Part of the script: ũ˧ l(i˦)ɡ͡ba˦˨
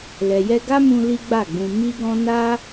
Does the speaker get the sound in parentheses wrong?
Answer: no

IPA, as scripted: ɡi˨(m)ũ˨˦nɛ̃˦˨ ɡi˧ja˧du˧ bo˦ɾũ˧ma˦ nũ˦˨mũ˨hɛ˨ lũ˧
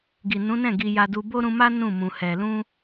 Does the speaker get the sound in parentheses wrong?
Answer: yes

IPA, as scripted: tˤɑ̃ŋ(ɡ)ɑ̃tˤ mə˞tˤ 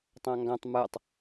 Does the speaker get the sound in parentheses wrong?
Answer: no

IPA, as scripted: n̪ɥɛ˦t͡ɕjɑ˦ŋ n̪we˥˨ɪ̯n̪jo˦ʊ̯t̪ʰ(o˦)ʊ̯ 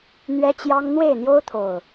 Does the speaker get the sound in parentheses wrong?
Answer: yes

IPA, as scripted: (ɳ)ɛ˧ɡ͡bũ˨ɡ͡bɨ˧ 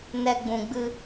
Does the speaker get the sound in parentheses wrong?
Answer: yes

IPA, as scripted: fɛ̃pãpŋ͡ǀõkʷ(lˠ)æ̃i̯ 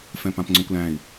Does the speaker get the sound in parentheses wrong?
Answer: yes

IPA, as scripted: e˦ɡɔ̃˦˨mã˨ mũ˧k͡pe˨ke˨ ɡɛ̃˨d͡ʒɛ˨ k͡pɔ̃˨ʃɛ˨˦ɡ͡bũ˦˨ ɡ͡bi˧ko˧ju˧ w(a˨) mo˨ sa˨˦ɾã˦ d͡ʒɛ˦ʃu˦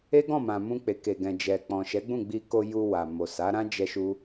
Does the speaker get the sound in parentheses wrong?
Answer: no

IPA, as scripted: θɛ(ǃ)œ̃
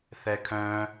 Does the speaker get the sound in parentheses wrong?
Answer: yes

